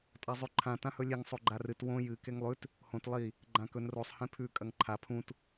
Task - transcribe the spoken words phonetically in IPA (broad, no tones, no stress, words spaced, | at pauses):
tʼazˤʉǃʰã tãhɵlʲeŋ sˤoɡ͡ǃarɨt wõ jɨ keŋlˠʉt | hõt lˠi | ɡ͡ǃãkɵn rosˤ hẽpʰʉ kʼɐŋǃʰa pʰũt